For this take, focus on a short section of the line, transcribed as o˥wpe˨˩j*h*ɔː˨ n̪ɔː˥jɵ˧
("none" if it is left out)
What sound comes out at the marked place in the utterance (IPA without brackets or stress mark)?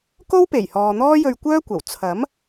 h